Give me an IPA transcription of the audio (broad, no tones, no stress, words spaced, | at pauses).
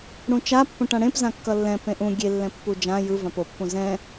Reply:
ɽũt͡ʃa pːõʈãɽẽp zãkːʌlːɛ̃ pẽʔũ ɡʲe lːɛ̃pːud͡ʒã jɯvãp opːũ zɛ̃